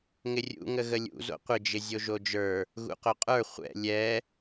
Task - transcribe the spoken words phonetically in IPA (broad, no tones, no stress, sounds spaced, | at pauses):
ŋ ɪ rʲ ṵ ŋ ə ɣ ə lʲ ṵ z o̰ qʷ ɪ d͡ʒ ɪ zʲ o ʒ o d͡ʒ ə˞ | ɣ ṵ q o qʼ ə˞ χʷ ɛ̰ lʲ ɛ